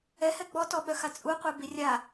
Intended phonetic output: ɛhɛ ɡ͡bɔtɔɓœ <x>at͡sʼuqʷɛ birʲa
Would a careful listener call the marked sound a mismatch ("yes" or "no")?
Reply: no